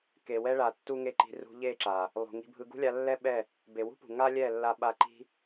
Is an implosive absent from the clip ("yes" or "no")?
no